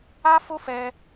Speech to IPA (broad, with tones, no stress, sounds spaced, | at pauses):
a˦ f o˦ f ɛ˧